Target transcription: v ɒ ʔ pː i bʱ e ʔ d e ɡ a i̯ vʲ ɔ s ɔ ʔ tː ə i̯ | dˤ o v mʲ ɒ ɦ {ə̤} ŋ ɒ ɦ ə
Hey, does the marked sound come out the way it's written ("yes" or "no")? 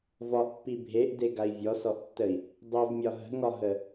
yes